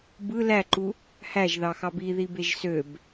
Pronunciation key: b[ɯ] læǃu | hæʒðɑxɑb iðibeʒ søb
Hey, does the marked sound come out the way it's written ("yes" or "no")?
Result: yes